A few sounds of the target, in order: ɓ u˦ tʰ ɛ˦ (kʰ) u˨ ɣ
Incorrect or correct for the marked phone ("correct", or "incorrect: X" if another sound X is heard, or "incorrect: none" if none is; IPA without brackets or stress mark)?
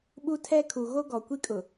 correct